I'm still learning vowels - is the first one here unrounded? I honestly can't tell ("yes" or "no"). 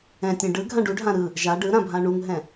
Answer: yes